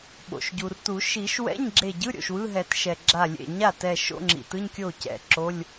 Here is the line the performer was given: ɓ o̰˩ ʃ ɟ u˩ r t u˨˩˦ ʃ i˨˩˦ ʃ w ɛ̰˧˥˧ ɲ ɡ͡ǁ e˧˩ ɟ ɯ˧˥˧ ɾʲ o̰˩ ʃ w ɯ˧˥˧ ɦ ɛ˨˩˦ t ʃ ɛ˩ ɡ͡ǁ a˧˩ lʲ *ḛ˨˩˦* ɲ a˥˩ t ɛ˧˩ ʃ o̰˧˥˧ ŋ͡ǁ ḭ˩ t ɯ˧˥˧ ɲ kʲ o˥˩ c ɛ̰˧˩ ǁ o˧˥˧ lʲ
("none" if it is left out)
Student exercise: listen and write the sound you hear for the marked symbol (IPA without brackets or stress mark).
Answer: ḛ˧˩